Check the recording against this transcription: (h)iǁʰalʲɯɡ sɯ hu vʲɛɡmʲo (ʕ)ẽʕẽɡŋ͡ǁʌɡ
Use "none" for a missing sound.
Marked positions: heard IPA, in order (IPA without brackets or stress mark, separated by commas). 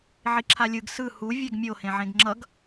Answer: ʕ, h